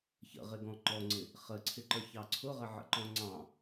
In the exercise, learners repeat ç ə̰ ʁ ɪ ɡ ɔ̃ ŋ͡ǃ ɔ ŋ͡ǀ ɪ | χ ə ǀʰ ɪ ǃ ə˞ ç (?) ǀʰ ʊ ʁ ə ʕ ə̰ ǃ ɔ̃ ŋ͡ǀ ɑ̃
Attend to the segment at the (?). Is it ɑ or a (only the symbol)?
ɑ